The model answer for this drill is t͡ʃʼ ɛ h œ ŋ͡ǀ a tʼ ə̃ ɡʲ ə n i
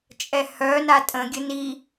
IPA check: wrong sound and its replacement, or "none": ŋ͡ǀ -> n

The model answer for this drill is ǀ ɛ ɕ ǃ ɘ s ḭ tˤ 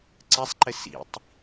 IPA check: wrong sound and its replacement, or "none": ɕ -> sˤ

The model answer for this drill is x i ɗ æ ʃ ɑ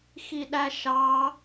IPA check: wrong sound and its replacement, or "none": none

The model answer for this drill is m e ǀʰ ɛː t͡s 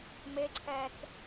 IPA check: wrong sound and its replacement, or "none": none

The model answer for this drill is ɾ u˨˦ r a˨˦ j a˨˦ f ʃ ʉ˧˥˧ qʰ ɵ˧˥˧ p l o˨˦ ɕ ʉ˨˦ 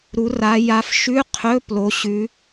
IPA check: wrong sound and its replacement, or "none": none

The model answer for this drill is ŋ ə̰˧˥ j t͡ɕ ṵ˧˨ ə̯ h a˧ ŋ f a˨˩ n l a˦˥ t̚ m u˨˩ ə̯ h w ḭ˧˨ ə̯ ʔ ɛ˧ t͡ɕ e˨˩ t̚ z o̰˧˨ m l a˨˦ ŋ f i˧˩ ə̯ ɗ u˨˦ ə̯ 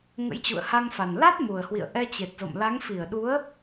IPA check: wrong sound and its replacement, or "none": none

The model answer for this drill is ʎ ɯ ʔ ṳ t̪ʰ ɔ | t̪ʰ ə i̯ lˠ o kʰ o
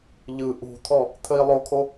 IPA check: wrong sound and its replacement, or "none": none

